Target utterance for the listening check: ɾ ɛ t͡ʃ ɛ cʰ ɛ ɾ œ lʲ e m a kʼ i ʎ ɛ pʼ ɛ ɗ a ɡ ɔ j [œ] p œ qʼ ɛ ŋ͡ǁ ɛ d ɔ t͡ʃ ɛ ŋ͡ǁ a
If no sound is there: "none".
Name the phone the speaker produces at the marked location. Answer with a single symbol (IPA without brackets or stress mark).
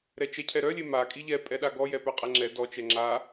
ɛ